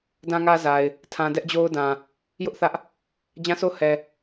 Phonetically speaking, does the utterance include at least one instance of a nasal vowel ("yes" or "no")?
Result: yes